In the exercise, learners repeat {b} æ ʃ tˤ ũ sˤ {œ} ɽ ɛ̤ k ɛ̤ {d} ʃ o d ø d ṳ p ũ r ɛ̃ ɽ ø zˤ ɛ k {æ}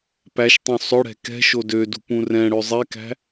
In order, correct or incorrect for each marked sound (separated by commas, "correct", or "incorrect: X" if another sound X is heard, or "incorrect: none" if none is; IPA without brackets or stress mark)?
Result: incorrect: p, incorrect: ɵ, incorrect: none, incorrect: æ̤